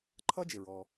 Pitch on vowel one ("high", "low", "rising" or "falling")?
high